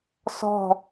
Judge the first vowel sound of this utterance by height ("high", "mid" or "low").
mid